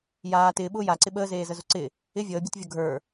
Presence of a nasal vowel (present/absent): absent